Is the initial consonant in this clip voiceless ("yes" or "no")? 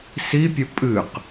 yes